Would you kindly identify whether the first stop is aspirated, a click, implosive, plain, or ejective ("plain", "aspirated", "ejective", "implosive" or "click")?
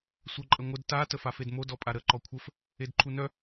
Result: click